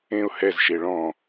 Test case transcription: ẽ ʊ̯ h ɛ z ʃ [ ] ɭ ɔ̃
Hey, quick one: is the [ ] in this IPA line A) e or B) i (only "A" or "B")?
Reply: A